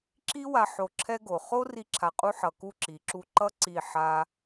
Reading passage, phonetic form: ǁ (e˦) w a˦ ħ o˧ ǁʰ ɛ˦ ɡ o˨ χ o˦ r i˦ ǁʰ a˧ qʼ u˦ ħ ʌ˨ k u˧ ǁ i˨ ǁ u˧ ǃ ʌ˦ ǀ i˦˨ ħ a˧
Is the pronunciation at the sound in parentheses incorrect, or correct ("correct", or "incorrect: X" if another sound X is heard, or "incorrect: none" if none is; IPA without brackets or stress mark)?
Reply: incorrect: i˦